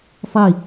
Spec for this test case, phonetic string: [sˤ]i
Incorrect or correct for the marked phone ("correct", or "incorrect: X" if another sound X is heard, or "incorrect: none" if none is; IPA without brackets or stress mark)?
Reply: correct